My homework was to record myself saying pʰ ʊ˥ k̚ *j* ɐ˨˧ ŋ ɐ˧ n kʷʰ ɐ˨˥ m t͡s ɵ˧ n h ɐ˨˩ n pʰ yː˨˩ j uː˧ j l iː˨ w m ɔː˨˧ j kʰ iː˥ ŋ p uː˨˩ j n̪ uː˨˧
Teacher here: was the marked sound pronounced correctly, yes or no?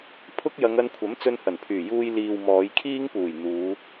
yes